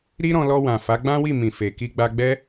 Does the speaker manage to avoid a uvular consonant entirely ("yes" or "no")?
yes